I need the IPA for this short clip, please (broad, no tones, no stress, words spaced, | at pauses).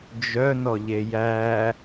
d͡ʒœnɔʎe jæ